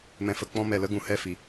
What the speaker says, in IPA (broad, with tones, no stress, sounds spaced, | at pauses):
m ɛ̃˧ f ə˧ k͡p ɔ̃˧ m ɛ˨ l ə˧ ɡ ũ˨ h ɛ˦˨ f i˨